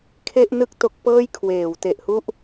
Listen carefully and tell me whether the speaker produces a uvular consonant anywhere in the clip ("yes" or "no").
no